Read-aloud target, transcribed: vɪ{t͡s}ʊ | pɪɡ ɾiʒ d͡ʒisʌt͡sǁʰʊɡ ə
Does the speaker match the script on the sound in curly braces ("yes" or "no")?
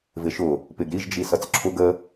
no